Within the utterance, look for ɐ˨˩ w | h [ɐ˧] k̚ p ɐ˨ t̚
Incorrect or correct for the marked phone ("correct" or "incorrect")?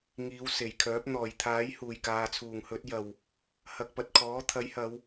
correct